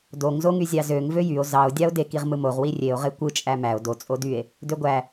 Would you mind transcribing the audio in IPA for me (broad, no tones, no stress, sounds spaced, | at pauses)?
d o ŋ z o ŋ y zʲ ɑ z ø ŋ v ø j y o̯ z ɑ o̯ dʲ ɑ o̯ d e k i ʁ m ɯ m o ʁ w i rʲ e o̯ ʁ e kʷ ɯ t͡ʃʼ æ m æ o̯ d o t͡sʼ o d y e̯ | d ø ɡʷ æ